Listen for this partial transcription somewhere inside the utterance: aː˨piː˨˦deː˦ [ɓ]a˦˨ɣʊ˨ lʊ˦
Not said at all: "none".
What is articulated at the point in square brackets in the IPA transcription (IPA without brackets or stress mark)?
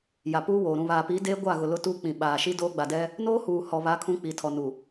ɡʷ